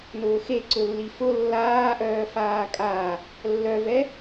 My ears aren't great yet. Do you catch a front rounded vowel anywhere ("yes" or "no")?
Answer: yes